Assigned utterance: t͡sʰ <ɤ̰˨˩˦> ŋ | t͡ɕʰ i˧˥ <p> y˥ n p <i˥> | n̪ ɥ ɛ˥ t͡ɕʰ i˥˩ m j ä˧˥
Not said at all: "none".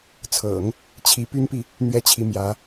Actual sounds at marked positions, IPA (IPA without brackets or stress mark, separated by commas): ɤ̰˨˩˦, p, i˨